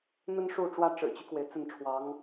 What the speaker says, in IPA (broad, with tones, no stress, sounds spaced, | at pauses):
n̪ ə˥ n ʂ u˥˩ ʈ͡ʂ w ä˥ ʈ͡ʂ ɻ̩˨˩ t͡ɕ y˦ k w e˩ ɪ̯ t͡s ə˥˩ n ʈ͡ʂʰ w ɑ˧˥ ŋ